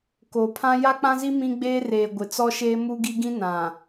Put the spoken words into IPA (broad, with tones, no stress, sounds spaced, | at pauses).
k oː˨ pʰ ã˦ j a˦ k͡p ã˦ z i˦ m ĩ˦ ɡ͡b eː˦ r eː˨ ɡʷ ɪ˨ t͡s ɔ˦ ʃ eː˦ m u˦ ɡ i˦ ɡ ĩ˦ n ã˨